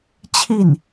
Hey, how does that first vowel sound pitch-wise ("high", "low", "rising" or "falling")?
falling